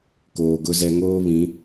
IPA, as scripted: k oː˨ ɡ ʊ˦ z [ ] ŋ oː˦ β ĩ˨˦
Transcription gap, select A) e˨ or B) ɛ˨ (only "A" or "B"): B